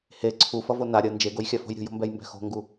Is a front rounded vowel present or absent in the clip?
absent